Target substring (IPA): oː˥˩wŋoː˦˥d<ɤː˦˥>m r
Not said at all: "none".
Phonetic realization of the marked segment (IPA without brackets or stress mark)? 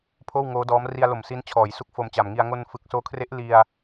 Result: ɔː˦˥